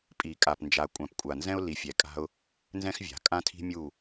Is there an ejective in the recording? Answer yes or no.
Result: yes